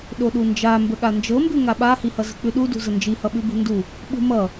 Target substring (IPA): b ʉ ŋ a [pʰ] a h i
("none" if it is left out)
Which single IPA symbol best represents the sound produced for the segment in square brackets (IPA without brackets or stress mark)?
ɓ